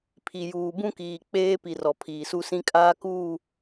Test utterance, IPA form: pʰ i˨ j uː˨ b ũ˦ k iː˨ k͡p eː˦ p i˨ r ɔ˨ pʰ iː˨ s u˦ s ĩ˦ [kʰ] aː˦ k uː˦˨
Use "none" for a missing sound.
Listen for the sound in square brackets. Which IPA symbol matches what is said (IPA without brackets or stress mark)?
kʼ